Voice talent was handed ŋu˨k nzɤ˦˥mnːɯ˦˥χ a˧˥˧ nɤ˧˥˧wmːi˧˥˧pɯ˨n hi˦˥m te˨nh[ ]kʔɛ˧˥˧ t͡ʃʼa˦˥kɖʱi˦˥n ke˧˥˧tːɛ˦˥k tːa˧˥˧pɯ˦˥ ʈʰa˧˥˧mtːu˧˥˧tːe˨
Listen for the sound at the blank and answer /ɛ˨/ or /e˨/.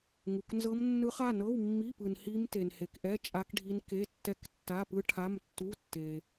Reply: e˨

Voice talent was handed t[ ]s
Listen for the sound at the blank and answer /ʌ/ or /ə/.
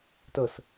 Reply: ə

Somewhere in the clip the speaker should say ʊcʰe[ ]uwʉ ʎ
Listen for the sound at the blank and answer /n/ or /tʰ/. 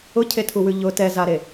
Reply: tʰ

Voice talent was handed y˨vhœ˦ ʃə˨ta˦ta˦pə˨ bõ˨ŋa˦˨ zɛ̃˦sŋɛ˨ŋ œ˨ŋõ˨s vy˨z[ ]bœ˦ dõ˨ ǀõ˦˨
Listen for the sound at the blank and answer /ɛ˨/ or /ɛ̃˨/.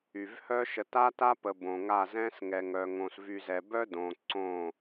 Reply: ɛ˨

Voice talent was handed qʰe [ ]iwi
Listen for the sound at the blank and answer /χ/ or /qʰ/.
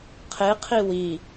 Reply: qʰ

